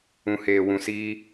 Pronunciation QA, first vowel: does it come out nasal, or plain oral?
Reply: nasal